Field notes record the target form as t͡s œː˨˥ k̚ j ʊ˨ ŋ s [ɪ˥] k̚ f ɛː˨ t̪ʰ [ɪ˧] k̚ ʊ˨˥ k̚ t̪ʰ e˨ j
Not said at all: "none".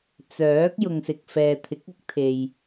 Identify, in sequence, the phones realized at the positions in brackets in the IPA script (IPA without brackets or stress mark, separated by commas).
ɪ˨, ɪ˨˥